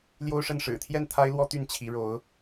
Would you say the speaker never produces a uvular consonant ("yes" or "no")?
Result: yes